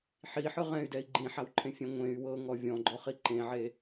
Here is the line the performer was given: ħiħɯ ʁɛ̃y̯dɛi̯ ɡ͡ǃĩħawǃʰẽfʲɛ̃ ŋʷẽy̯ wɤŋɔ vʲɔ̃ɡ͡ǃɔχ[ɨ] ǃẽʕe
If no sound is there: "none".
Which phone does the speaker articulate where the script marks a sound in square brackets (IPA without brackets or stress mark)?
i